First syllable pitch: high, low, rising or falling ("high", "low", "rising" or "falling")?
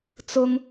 high